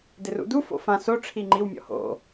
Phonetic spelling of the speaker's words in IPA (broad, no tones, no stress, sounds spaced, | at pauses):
d ɪ r ṵ d u f o̰ f ã s o ʈ͡ʂʰ i ŋ͡ǃ i w mʲ ɔ̰ h o̰